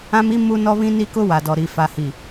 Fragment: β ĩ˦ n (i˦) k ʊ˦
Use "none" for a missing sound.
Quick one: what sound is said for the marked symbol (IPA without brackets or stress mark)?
i˦